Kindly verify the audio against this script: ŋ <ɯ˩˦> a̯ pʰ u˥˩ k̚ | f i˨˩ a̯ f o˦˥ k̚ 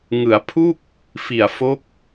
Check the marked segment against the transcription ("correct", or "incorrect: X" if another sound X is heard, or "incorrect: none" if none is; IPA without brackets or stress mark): correct